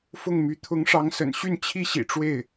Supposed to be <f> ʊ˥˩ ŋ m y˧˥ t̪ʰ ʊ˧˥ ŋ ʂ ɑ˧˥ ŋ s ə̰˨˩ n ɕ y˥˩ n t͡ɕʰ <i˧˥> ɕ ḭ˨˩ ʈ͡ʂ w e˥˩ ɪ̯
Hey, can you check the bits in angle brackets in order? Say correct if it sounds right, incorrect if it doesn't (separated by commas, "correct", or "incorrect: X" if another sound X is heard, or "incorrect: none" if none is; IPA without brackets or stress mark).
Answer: correct, incorrect: i˥